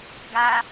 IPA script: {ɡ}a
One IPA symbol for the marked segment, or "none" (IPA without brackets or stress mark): ɡ